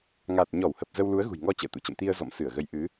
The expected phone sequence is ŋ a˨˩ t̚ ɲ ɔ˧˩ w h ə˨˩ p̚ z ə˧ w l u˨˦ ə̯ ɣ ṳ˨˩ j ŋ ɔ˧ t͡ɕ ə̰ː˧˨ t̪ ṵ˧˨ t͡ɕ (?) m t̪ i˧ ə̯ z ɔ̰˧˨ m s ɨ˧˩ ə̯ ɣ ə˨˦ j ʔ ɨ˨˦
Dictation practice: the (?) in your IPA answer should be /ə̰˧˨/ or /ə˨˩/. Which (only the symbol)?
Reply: ə̰˧˨